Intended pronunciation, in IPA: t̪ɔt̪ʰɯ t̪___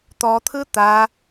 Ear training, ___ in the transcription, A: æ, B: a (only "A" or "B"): B